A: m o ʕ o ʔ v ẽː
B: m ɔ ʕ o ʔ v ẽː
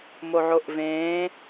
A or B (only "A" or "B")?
A